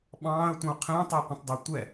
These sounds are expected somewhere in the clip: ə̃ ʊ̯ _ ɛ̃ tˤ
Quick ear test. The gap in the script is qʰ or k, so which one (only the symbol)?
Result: qʰ